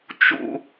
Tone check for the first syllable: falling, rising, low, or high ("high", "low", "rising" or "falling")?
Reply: low